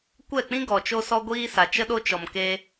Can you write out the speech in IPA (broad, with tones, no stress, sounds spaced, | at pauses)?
kʷ ɛ˦˨ k͡p ĩ˦ ɡ ɔ˨ t͡ʃ o˦ s ɔ˦ ɡʷ iː˦ s a˨ t͡ʃ ə˦ ɗ o˦ t͡ʃ ɔ˨ m k e˧